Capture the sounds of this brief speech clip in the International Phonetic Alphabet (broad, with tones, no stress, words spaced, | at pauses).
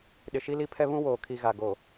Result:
ɗɪ˨ʃi˦li˦pʰɛ˦ βũ˦woː˨kʰi˨ ɣa˨ɡo˨